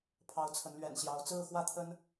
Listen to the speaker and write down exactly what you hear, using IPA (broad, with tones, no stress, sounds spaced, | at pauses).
pʰ ɑ˨˦ ʊ̯ t͡sʰ ə˨˦ n l ɥ ɛ̰˨˩ n ɕ j ɑ˨˦ ʊ̯ t͡s ɹ̩˥˨ x w ä˥˨ t̪ʰ ə˦ n